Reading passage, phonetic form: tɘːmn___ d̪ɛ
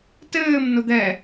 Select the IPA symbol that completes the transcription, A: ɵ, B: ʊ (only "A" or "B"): B